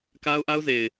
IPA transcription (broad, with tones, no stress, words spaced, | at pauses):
ka˦ʊ̯ʔa˦ʊ̯ze˨ɪ̯